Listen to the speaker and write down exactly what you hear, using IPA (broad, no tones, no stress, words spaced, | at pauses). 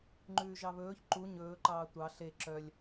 ŋ͡ǃʉːʒɑβɵːç ǃu ɲɵːǃɑː tʷɑ ɬe ǁœlʲ